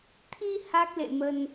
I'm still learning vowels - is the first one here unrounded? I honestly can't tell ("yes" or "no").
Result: yes